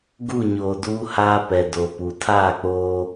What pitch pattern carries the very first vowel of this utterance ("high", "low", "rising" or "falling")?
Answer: falling